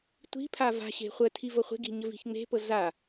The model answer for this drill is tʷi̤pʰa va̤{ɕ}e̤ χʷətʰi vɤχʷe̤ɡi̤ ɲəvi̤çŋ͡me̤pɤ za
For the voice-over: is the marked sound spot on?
yes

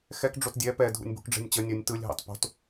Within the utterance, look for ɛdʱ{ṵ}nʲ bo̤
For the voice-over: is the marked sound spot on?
yes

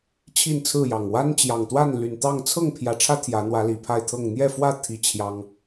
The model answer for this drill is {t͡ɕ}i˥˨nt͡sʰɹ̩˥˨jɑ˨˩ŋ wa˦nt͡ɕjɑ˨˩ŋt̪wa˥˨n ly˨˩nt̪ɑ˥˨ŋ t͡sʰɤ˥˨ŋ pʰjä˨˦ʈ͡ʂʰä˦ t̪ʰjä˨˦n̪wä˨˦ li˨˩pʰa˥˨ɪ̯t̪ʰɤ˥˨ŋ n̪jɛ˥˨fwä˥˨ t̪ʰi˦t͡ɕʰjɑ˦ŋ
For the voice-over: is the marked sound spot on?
no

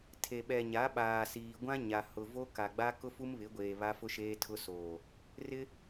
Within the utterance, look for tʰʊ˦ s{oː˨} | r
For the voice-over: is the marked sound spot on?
yes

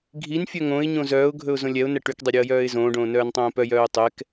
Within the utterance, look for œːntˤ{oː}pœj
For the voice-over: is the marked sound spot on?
no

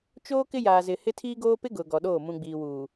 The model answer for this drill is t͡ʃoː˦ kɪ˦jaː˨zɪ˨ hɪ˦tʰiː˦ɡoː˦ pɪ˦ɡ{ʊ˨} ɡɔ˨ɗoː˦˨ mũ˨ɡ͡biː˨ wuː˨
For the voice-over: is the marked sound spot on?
yes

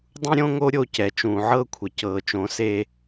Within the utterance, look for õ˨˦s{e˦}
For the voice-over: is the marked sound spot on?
yes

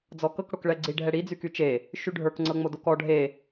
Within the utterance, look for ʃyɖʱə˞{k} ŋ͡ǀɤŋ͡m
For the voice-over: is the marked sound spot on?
yes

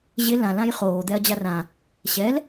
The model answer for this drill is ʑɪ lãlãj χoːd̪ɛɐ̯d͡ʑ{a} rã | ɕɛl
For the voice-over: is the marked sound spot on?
yes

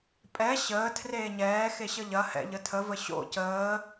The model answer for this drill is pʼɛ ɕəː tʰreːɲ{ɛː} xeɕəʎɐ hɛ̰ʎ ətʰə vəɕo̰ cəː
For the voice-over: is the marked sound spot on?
yes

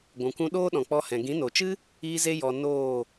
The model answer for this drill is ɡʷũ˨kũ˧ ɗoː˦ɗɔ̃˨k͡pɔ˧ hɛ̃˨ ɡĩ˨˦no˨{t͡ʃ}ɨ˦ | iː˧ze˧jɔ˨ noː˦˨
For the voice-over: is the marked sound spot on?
yes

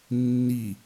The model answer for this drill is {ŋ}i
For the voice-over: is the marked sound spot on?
no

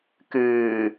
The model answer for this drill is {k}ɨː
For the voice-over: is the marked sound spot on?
yes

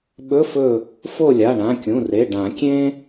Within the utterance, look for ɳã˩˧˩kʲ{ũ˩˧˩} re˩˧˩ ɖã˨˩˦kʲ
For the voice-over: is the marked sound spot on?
yes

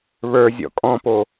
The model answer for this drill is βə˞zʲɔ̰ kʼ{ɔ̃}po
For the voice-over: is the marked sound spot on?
yes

